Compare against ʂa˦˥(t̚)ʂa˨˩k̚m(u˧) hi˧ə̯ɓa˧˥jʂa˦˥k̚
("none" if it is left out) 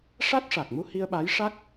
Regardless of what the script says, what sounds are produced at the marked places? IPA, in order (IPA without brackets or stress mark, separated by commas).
t̚, u˧